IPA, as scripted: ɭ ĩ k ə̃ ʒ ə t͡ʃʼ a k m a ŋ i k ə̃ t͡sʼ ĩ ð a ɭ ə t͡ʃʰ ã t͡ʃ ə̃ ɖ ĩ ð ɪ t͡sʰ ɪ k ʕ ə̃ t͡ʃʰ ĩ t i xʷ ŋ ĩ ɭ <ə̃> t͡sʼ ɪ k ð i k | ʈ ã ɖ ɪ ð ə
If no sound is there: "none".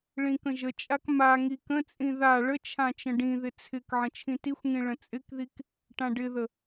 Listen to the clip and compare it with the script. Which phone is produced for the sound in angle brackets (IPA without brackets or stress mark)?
ə̃